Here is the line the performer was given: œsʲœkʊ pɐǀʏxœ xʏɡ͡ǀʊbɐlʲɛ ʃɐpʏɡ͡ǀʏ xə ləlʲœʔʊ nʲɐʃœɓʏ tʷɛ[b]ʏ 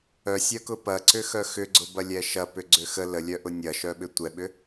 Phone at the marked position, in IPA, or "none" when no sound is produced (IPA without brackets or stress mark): ɓ